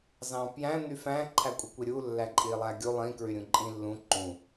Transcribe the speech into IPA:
z ɑ̃ p j æ̃ n̪ y f æ̃ ǃʰ æ kʷʼ i kʷ i ɾʲ u lː æ ǃʼ i lˠ æ ɡʲ u lˠ ĩ k ɹ y ɾʲ ũ ǃʼ ĩ lː ũ ǃ ũ

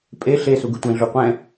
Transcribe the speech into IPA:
pʼ e ɬ e s u ɡ ɯ tʷ ɛ̃ ɮ u qʷ ɛ̃

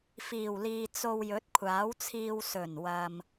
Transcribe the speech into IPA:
f iː˨˩ w l iː˨ t͡s o˧ w j ɵ˨˥ t̚ kʷʰ aː˨˥ w t͡sʰ iː˧ w s ɵ˨˩ n w ɐ˨ m

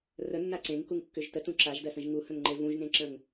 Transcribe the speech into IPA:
r ə nː a ǀ ẽ ŋ k u ŋ kː ʏ ʒ t ə t ũ ǁ a ʒ d ɜ s ə̃ ʒ ŋ u h ə̃ ŋ ŋ͡ǃ e v ũ ʒ ŋ ẽ ǁ ə̃ ŋ

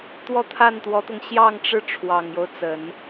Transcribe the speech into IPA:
t̪ w ɔ˥ t̪ʰ a˥˩ n t̪ w ɔ˧˥ t̪ ɤ˧ ŋ ɕ j ɑ˥˧ ŋ ʈ͡ʂ ɻ̩˥˩ ʈ͡ʂʰ w ɑ˨˩ ŋ j o˦ ʊ̯ t͡s ə˨˩˦ n

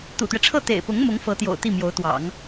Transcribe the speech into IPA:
t̪ ṵ˨˩ t̪ ɥ ɛ˦ ʈ͡ʂʰ ɤ˥˩ t̪ ḛ˨˩ ɪ̯ p ʊ˧˥ ŋ m ʊ˧˥ ŋ f ɤ˧˥ t̪ j o̰˨˩ ʊ̯ t̪ i˥˩ m j o˧˥ ʊ̯ t̪ w ɑ̰˨˩˦ ŋ

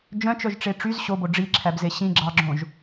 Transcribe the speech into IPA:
d͡ʒ œ̃ t͡ʃ œ ʒ ʈ͡ʂ e ʈ͡ʂ y z ɕ o b o ɖ͡ʐ i ǁʰ æ b z e ɕ ĩ ɡ͡ǁ ɑ ɡ͡ǁ õ ʒ

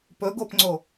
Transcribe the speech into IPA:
p ɵ ɡ o p ŋ͡ǀ o

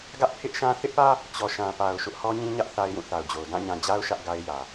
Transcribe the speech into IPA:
ɡ ä˦ ʔ pʰ ɪ˦ ʔ ʃ ã˦ θ ɪ˦ ʔ p ä˦ | t͡ɕ ɔ˨ ʃ ã˨ p a˨ ʊ̯ ʃ ʊ˦ ʔ h ɔ˦ ɲ ĩ˦ ɲ ä˦ ʔ θ a˦ ɪ̯ j ũ˦˨ θ a˨ ʊ̯ d͡ʑ o˨ ʊ̯ d ã˦˨ ɲ ã˨ d͡ʑ a˦ ʊ̯ ʃ ä˦ ʔ ɡ a˦ ɪ̯ j ä˨

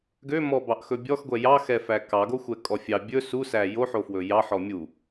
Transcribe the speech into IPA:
ɡ ø m ɔ b ɑ ʔ x ɵ bʲ ɔ x ɡʷ ɛ j ɑ x ɛ f æ k ɑ ɡ o xʷ ɛ kʼ ɔ fʲ ɑ bʲ ɵ s u s æ j o ħ o f w ɵ j ɑ ħ ɔ mʲ u

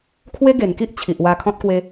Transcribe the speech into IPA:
kʰ w e˦ ɡ e˨˩ n k i˦ ʔ t͡ɕʰ i˨ ʔ w a˧ kʰ ɔ̃˦ t̚ k w e˧

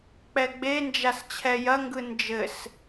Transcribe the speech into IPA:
k͡p ɛ ɡ͡b e n d͡ʒ a s t͡ɕʰ ɛ j ɐ ŋ ɡ ɯ n d͡ʒ ɘ s

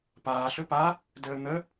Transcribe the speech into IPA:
p aː ɬ ɵ p a | d əː n̪ ə

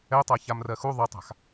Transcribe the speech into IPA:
ɛ tˤ a ç a m r ɜ x u ðˤ ʌ tˤ a̤ x

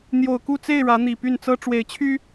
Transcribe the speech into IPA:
n̪ j o˨˩ ʊ̯ k u˥˨ t͡s e˥˨ ɪ̯ ɻ ä˨˦ n̪ i˨˩ p y˥˨ n t͡s ɤ˦ ʈ͡ʂ w e˨˦ ɪ̯ t͡ɕʰ y˦

